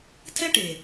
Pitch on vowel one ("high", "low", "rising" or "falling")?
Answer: high